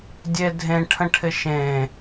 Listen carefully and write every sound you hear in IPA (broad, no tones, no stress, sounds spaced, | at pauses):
dʲ e dʱ ẽ ʈʰ ə̃ ʈʰ ɪ ʃ ẽ